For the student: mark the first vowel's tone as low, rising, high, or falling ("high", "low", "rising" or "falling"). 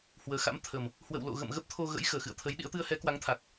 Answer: low